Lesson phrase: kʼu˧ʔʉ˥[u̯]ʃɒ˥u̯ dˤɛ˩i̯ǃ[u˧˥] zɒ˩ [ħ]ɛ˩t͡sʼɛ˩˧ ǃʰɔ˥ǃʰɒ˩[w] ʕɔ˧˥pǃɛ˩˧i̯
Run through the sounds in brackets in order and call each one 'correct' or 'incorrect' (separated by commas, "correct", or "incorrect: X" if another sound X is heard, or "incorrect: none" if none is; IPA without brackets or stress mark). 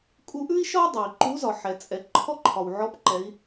incorrect: i̯, correct, correct, correct